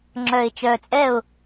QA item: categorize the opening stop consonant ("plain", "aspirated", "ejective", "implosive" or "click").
click